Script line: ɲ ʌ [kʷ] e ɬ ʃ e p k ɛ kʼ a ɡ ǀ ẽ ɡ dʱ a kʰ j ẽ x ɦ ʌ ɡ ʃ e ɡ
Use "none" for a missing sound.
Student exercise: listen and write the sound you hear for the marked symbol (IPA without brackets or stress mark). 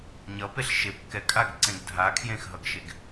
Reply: p